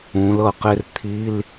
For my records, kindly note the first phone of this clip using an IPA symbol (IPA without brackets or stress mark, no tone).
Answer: ũ